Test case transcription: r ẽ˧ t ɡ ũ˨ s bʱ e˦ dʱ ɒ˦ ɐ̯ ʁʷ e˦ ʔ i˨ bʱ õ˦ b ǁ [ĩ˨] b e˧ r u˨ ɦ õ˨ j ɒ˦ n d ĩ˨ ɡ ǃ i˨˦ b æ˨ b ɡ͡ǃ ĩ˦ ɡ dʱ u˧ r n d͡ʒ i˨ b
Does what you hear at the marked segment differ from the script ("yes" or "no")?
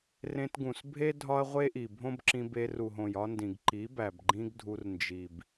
yes